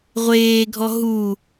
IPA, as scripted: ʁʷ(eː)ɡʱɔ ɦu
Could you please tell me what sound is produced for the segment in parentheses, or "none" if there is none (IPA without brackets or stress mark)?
eː